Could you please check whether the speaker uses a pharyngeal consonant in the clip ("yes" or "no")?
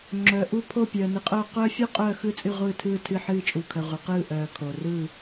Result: yes